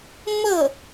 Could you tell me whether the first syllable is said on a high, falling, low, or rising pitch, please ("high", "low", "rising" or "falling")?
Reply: falling